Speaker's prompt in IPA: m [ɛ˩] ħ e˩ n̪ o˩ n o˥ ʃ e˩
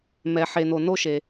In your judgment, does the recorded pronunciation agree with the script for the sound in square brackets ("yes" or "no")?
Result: yes